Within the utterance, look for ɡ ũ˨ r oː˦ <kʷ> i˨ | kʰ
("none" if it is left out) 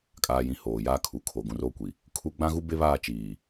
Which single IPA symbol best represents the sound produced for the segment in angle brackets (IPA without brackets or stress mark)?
kʷ